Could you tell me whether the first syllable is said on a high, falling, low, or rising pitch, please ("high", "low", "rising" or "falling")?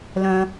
high